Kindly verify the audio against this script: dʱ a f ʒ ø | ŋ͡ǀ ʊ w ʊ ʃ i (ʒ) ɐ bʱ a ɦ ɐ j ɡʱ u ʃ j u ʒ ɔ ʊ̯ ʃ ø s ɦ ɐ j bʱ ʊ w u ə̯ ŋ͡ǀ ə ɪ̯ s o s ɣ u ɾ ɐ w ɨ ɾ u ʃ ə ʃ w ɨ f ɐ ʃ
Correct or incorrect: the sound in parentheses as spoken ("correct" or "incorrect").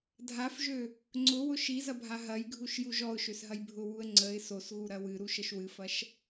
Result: incorrect